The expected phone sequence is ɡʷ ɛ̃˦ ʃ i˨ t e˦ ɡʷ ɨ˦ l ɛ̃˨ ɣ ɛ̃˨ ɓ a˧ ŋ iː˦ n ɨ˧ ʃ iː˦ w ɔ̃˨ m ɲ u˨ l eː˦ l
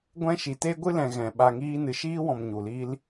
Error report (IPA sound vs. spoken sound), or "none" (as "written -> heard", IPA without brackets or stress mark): eː˦ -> iː˦